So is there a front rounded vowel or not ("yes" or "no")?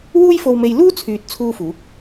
yes